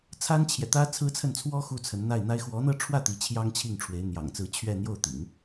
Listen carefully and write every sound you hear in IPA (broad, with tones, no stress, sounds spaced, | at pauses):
t͡sʰ a˥ n t͡ɕʰ j ɛ˨ t̪ ä˥ t͡sʰ ɹ̩˥ t͡sʰ ə˥˩ n t͡sʰ w ɔ˥ x u˥˩ t͡sʰ ə˧˥ n n̪ a˥˩ ɪ̯ n̪ a˥ ɪ̯ x w ɔ˧˥ n̪ ɤ˥˧ ʈ͡ʂʰ w ä˥˩ t̪ i˧˥ t͡ɕʰ j ɑ˥ ŋ t͡ɕʰ i˥˩ ŋ ʈ͡ʂʰ w e˧˥ ɪ̯ n̪ j ɑ̰˨˩ ŋ t͡s ɹ̩˧˥ t͡ɕʰ ɥ ɛ˥˧ n̪ j o˥˩ ʊ̯ t̪ ḭ˨˩˦ ŋ